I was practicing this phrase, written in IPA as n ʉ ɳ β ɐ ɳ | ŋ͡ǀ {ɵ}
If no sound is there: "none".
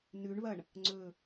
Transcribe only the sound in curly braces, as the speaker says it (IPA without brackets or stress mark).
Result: ɵ